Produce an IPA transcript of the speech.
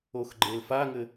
o x ɡ͡ǃ e l f a ŋ ɘ

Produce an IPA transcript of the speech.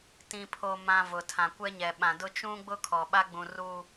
t ĩ˨ pʰ o˨ m ã˨ v ʊ˨ tʰ ã˨ kʷ ɛ˦ ɲ ɛ˨ ɓ ã˨ d ʊ˦ t͡ʃ ũ˦ ɡ͡b ʊ˦ kʰ ɔ˨ ɓ a˦ ɡ͡b ũ˨ r uː˨

